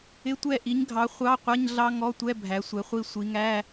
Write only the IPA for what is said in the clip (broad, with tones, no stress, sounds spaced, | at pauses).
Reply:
ɪ˧˥˧ tʷ ɛ˦˨ ʔ i˨˦ ɲ ɡʱ ɑ˨˦ χʷ ɑ˧˥˧ qʷ ʌ˧˥˧ ɲ ɮ ɑ˦˥ ŋ ɔ˧˥˧ tʷ ɛ˧˥˧ bʱ æ˨˦ sʷ ɛ˨˦ χʷ i˦˨ sʷ i˨˦ ŋ æ˧˥˧